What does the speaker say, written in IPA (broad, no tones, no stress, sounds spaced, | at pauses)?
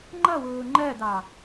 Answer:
ŋ͡ǃ ʌ w ʊː ŋ͡ǃ ɜ d ɑ